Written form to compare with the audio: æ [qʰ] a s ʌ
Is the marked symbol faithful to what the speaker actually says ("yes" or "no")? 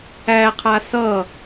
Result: yes